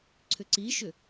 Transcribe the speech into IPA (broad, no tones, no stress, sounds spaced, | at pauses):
ǀʰ ʏ ǀ i ʃ ʏ